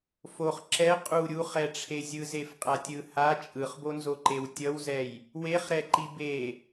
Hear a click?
yes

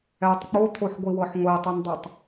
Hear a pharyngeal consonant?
yes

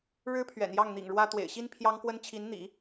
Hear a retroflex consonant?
yes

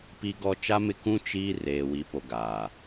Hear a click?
no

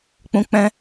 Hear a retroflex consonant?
no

